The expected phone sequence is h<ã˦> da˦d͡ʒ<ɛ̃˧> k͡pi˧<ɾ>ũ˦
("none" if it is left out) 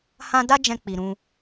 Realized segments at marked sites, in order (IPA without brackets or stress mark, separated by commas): ã˦, ɛ̃˧, ɾ